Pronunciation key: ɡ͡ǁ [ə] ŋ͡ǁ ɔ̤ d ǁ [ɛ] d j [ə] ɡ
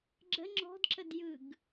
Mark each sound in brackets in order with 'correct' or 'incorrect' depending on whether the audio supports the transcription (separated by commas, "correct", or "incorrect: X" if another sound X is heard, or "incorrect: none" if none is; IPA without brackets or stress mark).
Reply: correct, incorrect: ə, incorrect: ɯ